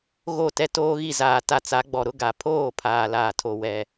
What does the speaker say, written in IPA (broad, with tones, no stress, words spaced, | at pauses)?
ɣo˦˨ tɛ˦toː˦ɣi˦˨ zaː˨ ta˦ t͡sa˨˦ɡ͡bɔ˨ɾʊ˦ ɡa˨pʰoː˦˨ pʰaː˨laː˨ tʰo˨ wɛ˨